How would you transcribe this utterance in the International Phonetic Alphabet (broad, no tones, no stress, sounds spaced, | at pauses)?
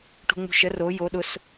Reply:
ʈ ṳ ŋ͡m ṳ ʃ ə r o j o ɗ ʊ s